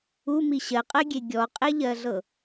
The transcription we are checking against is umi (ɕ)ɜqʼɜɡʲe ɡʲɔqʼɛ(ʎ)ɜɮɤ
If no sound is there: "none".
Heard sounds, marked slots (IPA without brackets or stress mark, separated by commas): ɕ, ʎ